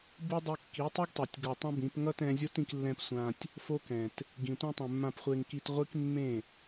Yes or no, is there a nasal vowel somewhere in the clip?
yes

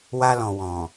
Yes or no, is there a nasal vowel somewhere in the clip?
yes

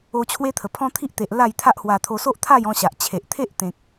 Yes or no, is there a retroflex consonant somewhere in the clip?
no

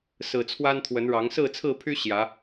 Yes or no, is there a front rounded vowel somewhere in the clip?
yes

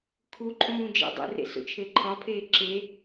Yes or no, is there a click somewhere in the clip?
yes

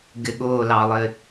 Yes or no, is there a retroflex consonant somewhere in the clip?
no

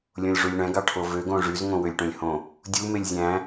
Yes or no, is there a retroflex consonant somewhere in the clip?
yes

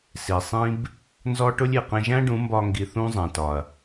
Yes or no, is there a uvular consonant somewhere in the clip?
yes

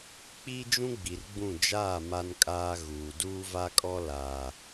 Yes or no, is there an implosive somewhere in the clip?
no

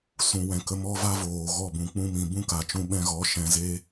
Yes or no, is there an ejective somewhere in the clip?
no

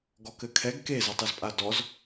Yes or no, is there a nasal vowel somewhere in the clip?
no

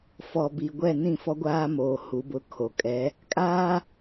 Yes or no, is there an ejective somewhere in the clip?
yes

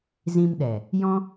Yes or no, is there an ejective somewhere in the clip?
no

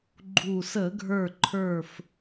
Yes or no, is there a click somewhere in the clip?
yes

